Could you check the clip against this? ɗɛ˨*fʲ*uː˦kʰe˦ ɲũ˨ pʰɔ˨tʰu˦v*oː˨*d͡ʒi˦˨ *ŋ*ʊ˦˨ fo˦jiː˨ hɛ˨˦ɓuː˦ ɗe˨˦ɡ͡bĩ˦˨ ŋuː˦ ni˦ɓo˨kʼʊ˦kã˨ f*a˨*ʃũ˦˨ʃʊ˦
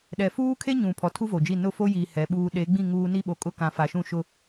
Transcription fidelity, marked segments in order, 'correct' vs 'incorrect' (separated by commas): incorrect, incorrect, incorrect, correct